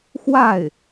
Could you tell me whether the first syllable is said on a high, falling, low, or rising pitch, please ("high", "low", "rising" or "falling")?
falling